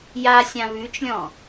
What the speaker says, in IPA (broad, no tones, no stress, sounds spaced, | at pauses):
j a sʲ ã β ʉ t͡ʃ lʲ ɔ̃